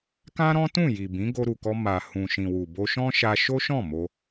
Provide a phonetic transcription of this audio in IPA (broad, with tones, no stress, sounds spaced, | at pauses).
k ã˦ ɾ ɔ̃˦ t ũ˦˨ j i˨ b ĩ˨˦ ɡ o˧ ɾ u˨ k ɔ˧ m a˨ h ũ˨ ʃ ĩ˨ w u˨ b o˧ ʃ ɔ̃˦ ʃ a˧ ʃ o˦ ʃ ɔ̃˦˨ m o˧